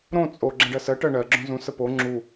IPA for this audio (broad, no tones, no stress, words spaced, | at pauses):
ɾõ t͡sʼo ɡ͡ǁə̃ɖɜsɜ ʈɜɳɜ ɡ͡ǁõzũ səpo ŋ͡ǁu